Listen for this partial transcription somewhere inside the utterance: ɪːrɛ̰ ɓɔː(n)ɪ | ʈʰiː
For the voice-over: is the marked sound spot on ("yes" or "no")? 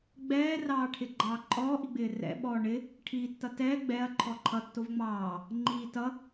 no